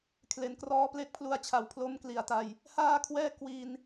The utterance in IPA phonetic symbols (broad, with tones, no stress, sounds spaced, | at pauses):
kʰ l e˩˦ n k r ɔː˦˥ p l e˦˥ k̚ pʰ l u˧ a̯ t͡ɕʰ a˩˦ w pʰ l o˦˥ m k l i˨˩ a̯ t a˧ j | h aː˥˩ kʰ w ɛː˥˩ k w i˧ n